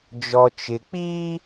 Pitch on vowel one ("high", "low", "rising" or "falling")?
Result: low